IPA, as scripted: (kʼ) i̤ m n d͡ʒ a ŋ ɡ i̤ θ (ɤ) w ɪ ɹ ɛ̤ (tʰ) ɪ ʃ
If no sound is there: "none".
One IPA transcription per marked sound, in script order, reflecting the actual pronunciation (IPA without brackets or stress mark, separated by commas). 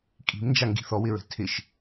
kʼ, ɔ, tʰ